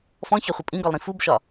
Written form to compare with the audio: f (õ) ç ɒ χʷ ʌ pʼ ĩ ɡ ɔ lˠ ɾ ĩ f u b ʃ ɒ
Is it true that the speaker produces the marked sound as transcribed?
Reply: no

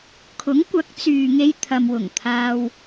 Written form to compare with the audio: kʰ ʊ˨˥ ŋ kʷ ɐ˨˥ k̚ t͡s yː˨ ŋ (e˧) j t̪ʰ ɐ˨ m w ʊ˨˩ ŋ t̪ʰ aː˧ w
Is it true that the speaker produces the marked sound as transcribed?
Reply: yes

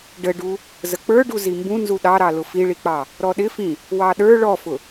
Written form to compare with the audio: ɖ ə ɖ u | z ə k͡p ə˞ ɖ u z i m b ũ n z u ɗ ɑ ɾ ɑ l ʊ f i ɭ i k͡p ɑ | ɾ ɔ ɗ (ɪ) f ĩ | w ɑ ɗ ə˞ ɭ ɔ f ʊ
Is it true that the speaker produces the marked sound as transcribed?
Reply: yes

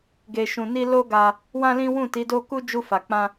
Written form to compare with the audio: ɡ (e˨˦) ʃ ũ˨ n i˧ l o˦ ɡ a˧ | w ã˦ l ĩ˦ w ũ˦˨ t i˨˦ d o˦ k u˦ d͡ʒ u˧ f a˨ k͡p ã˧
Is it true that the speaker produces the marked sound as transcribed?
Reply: no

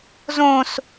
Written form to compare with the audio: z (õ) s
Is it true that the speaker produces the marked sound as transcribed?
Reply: yes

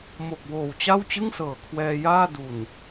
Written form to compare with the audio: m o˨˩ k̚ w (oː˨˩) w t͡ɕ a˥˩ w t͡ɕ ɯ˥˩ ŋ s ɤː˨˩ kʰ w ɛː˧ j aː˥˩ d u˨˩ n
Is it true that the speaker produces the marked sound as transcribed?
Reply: yes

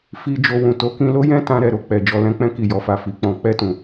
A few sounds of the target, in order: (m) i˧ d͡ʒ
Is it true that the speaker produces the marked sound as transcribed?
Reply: no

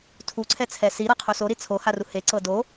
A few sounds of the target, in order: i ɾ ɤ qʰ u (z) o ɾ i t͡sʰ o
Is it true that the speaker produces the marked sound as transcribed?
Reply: no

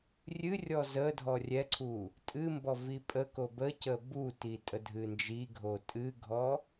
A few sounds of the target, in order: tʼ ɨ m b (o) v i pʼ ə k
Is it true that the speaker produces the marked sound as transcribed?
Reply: no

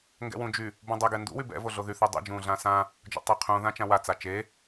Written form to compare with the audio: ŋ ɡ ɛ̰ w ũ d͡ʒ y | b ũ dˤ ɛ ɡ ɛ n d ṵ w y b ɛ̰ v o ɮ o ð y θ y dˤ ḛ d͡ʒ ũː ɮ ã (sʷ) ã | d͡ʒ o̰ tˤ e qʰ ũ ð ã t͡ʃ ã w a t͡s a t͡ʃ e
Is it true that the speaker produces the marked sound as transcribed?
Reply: no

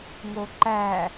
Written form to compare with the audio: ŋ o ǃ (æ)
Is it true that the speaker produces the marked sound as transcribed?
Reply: yes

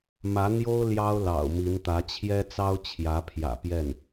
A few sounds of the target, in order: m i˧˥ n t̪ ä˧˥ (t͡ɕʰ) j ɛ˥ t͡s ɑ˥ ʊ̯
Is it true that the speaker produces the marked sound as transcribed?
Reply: yes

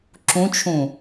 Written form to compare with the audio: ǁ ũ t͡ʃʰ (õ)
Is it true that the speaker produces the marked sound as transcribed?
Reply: no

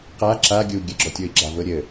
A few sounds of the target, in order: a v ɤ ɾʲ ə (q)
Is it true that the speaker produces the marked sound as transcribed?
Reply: no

